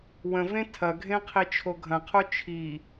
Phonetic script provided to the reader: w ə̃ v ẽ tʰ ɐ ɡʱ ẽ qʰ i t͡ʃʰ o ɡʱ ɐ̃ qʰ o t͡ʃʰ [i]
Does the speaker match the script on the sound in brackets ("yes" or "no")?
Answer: yes